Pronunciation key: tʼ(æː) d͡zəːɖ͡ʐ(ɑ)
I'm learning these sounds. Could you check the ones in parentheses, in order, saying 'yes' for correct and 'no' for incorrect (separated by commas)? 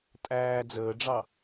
yes, yes